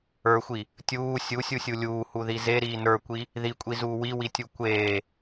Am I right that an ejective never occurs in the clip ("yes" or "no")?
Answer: no